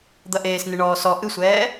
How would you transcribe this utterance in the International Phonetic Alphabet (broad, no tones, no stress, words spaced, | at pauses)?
d̪ɐʔeːs nɨɳɔːsɔ ʔɨsʷɛː